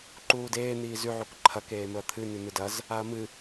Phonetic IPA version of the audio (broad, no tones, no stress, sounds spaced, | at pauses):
ǃ uː d eː n̪ iː z ʉ ʕ u k ǃʰ ɐ k eː m ɵ ɐ̯ t̪ʰ ɨ n ʉ n̪ ɨ d ɐ z | a ɐ̯ m ɨ